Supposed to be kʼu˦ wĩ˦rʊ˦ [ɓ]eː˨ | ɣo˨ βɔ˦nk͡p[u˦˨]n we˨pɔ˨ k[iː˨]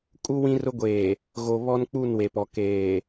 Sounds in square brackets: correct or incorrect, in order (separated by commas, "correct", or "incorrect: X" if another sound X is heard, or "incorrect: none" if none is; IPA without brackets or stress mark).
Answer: incorrect: ɡʷ, correct, incorrect: eː˨